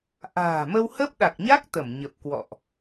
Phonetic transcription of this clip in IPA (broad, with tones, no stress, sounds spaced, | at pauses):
ʔ a̤ː˨˩ m ə˧ w h ə˦˥ p̚ ɗ a˨˩ k̚ ɲ a˦˥ k̚ t̪ ə˧˩ m ɲ ə˨˩ p̚ k w ɔ̰˧˨ ʔ